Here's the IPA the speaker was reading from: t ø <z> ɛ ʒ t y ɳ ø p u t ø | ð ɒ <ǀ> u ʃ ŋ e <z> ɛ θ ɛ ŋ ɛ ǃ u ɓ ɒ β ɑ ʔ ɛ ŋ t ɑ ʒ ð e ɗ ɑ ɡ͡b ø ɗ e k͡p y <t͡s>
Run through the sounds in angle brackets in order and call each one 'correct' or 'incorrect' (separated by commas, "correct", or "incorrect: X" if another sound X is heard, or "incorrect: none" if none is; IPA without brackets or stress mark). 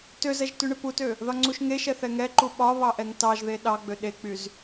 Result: correct, incorrect: ŋ͡ǀ, incorrect: ʃ, incorrect: z